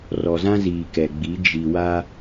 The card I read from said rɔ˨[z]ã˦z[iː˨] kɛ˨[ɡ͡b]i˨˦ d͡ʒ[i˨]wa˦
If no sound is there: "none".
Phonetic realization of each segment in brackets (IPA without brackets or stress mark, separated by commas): z, iː˨, ɡ͡b, i˨